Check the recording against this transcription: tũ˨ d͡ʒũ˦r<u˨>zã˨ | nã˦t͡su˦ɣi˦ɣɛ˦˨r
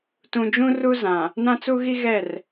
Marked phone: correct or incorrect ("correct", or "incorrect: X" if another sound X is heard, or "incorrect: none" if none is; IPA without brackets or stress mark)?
incorrect: u˦